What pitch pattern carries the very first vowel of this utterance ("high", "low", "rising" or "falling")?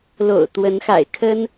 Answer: low